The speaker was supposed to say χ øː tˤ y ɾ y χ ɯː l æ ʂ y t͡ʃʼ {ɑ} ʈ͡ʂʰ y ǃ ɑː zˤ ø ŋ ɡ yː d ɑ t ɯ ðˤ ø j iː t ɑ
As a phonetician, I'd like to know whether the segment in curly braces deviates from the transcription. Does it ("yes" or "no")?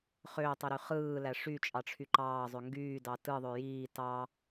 no